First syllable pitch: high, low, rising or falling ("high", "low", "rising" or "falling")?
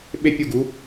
falling